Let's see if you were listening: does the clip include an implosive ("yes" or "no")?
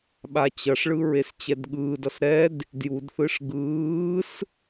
yes